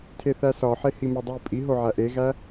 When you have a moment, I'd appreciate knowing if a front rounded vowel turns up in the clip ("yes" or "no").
no